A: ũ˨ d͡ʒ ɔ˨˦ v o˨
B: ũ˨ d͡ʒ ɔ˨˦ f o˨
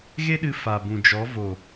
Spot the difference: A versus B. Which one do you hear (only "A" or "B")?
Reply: A